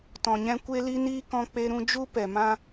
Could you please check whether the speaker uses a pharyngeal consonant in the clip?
no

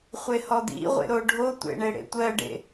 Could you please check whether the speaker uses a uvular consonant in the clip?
yes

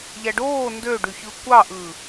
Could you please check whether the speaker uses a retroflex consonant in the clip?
yes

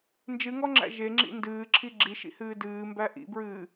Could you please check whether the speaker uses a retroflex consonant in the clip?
no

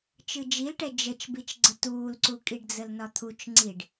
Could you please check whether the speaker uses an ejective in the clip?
yes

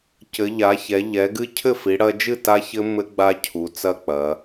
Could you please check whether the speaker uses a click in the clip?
no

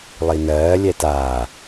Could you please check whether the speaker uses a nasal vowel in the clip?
no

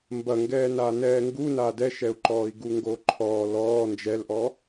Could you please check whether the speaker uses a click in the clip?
yes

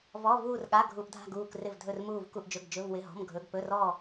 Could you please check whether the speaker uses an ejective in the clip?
no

